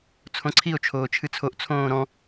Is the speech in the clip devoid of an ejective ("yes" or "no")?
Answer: yes